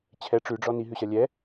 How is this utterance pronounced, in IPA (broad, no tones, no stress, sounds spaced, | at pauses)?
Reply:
t͡ɕʰ ɛ ʈ͡ʂ ʉ ɖ͡ʐ ɔ n i ɦ ʉ ɕ ɐ lʲ ɛ